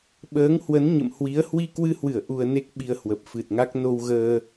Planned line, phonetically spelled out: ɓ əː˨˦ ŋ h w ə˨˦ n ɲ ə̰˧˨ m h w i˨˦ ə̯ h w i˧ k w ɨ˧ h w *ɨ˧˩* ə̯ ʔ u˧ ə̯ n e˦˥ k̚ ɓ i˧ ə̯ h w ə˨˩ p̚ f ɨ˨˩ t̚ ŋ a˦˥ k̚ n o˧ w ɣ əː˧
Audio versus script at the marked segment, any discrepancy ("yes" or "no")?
no